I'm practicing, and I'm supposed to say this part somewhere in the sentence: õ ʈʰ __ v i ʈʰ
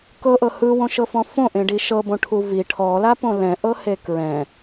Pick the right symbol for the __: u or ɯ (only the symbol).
u